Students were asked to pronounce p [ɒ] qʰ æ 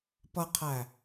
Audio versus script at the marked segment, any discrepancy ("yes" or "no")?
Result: yes